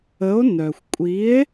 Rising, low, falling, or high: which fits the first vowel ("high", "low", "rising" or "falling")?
rising